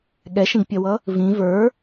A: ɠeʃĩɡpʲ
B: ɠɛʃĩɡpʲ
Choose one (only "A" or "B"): B